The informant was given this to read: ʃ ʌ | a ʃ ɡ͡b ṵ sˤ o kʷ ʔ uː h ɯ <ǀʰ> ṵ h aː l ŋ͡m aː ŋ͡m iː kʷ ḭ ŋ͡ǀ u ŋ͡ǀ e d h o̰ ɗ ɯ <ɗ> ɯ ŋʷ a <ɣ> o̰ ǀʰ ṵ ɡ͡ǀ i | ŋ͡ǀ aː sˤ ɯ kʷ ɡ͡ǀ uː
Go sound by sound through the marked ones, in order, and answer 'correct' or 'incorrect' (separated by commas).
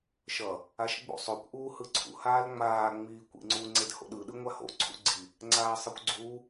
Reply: correct, correct, incorrect